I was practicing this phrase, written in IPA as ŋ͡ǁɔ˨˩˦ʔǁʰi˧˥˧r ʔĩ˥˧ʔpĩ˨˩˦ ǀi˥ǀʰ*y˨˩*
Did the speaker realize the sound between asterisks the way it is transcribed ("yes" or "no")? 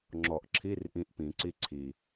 no